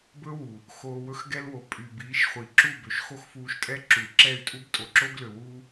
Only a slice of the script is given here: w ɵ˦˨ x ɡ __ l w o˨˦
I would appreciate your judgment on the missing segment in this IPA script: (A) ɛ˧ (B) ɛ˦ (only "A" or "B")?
B